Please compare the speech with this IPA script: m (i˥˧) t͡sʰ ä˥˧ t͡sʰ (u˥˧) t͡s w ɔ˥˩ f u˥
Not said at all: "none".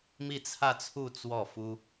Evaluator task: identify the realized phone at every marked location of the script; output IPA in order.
i˥˧, u˥˧

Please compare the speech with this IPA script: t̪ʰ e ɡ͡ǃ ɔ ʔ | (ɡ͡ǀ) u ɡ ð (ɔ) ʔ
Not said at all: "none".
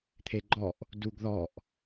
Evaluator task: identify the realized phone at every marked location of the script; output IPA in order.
d, ɔ

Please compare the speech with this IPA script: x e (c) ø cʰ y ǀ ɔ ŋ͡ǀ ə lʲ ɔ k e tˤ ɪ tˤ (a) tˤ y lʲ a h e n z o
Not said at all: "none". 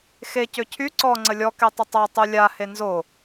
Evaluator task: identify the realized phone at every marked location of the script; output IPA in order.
c, a

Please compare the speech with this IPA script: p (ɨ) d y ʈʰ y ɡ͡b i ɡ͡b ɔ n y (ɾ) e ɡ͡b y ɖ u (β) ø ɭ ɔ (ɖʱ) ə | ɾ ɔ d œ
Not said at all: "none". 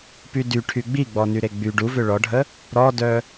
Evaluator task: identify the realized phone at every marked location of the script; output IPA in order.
y, ɾ, v, ɖʱ

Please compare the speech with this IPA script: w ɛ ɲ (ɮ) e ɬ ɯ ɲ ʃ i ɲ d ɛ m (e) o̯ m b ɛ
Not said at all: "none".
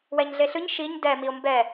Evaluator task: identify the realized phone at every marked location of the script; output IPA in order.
ɮ, i

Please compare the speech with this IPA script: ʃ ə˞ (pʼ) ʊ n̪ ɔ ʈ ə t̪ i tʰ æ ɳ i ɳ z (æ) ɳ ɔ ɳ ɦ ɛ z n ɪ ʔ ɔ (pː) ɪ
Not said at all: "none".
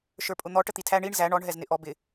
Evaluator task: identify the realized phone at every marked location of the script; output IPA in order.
pʼ, æ, b

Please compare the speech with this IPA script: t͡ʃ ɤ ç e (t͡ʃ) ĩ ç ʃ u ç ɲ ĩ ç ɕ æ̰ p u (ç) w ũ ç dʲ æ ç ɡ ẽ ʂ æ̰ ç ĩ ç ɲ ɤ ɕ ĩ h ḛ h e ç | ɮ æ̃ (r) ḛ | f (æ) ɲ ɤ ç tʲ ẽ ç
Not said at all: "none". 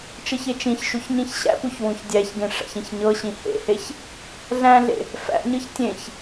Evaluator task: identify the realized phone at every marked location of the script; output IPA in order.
t͡ʃ, ç, ɮ, æ̰

